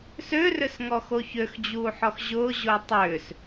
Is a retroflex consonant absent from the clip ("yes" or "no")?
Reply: yes